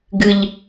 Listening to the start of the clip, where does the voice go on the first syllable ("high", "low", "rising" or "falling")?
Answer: low